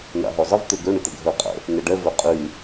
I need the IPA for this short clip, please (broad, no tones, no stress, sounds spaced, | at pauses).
n a̰ ɦ ø zˤ ə v t̪ ø ɡ ø ɳ ə t̪ ə ɡʱ ø qʼ ə̰ | n ə ɖ ɛ v ɛ qʼ y